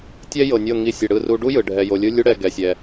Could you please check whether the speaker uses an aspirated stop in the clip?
no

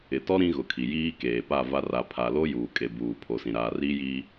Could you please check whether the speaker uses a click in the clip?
no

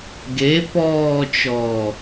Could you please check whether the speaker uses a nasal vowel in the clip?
no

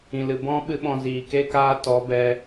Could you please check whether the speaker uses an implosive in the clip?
yes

